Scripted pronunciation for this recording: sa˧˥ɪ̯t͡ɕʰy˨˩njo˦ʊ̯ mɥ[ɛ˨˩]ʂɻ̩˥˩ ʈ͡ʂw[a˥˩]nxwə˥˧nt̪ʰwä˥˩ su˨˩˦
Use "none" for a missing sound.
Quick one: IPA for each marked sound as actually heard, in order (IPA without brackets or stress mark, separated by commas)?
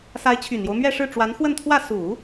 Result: ɛ˥˧, a˧˥